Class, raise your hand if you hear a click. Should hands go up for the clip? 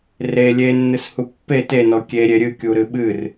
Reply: no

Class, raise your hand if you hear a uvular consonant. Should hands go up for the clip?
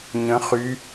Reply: yes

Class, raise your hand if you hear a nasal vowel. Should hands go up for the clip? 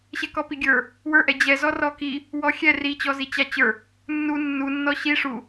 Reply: no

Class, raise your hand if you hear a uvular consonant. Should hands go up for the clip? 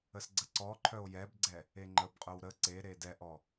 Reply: yes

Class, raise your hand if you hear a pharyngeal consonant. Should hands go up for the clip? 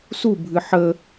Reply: yes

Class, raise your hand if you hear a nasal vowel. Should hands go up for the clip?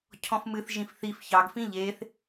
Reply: yes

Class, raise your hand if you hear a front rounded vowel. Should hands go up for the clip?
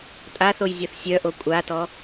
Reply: yes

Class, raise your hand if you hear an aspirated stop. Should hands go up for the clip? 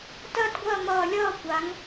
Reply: no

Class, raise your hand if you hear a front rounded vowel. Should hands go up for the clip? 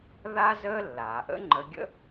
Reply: no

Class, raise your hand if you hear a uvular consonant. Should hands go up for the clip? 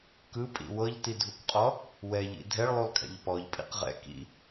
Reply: yes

